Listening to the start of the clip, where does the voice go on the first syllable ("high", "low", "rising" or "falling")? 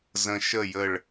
low